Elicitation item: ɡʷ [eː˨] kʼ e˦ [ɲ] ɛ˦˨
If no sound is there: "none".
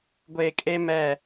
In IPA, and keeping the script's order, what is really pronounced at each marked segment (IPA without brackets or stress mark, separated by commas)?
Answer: eː˨, m